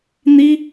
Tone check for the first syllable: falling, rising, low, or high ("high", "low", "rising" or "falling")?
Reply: high